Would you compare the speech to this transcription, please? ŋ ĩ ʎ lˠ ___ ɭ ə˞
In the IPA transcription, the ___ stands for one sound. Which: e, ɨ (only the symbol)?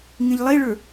e